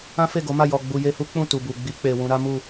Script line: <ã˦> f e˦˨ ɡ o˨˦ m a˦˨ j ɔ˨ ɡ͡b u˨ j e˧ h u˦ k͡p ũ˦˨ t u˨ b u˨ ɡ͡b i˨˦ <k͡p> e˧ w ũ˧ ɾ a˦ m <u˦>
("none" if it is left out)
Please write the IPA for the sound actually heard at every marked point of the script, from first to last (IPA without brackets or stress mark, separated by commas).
ã˦, k͡p, u˦˨